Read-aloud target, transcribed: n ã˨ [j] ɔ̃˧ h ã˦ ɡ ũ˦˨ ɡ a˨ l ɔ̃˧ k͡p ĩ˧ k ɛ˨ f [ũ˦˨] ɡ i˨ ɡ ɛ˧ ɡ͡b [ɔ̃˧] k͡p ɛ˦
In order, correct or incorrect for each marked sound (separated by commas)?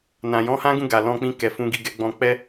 correct, incorrect, correct